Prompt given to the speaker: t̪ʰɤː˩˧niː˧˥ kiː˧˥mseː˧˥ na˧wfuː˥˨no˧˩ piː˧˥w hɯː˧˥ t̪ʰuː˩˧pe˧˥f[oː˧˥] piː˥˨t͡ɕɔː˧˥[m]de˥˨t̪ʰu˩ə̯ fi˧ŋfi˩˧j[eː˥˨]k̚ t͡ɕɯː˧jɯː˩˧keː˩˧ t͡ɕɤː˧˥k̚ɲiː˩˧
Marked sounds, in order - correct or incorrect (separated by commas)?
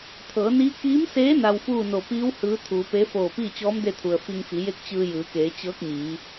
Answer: incorrect, correct, incorrect